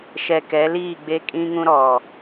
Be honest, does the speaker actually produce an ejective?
yes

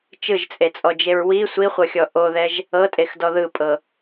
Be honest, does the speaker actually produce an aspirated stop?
no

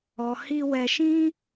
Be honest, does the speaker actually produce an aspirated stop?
no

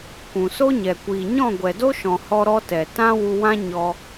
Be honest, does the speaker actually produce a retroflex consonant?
no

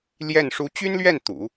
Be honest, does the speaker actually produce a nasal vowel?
no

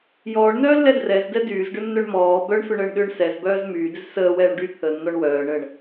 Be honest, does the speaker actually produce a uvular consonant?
no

